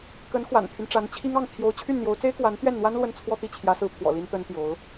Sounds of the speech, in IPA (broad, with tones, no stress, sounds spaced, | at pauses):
k ə˧˥ n x w a̰˨˩ n pʰ y˦ n ʈ͡ʂ a˧˥ n t͡ɕʰ i˥ ŋ ɑ˥˩ ŋ t̪ʰ j o˧˥ ʊ̯ t͡ɕʰ y˥˩ n n̪ j o˧˥ ʊ̯ t͡s e˥ ɪ̯ k w a˧˥ n t̪ ɥ ɛ˥˩ n n̪ w a˥ n l w ə˥˧ n t͡sʰ w ɔ˥˧ t̪ i˥˩ t͡ɕʰ j ä˧˥ s ɹ̩˧˥ pʰ w ɔ̰˨˩ l i˥ n t̪ ə˥ n t̪ j o˧˥ ʊ̯